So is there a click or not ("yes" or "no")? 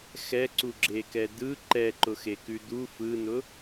yes